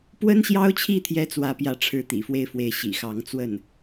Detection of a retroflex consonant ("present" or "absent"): present